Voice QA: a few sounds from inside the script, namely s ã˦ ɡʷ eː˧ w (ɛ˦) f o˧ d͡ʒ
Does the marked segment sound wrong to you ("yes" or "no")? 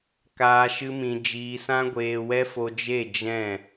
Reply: no